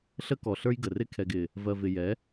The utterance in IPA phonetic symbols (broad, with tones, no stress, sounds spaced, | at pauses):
ɬ ə˦ k ɔ˨ ɬ ə˞˦ j ɡ ə˨ r ɪ˦ kʰ ɛ˨ ɡ ɪ˨ | v ɜ˨ v ɪ˨ j ɛ˨˦